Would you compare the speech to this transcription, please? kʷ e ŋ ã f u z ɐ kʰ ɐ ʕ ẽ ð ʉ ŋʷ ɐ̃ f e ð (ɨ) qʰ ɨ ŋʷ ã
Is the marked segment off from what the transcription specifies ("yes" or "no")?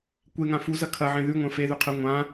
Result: yes